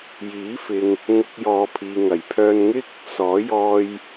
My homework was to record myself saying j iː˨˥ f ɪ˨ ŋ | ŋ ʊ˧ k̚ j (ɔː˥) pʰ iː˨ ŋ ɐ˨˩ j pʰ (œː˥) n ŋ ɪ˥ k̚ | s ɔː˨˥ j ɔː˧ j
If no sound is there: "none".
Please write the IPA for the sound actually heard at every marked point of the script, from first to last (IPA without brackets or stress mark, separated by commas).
ɔː˨˧, œː˧